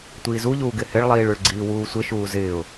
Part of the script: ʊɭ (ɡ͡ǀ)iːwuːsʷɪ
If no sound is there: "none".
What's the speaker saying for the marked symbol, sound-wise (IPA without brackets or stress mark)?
ɡ͡ǀ